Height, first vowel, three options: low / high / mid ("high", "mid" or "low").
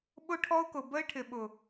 high